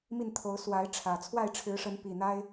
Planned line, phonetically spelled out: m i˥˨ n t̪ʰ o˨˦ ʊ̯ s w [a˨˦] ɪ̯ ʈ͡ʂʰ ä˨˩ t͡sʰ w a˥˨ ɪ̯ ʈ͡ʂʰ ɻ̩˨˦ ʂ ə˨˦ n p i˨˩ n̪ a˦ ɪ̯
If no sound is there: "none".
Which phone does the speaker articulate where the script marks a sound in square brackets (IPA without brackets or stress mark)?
a˨˦